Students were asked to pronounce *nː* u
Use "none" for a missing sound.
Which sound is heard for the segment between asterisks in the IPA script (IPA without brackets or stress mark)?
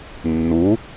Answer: nː